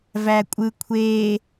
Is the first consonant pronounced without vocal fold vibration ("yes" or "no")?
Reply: no